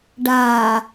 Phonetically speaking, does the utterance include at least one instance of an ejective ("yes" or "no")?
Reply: no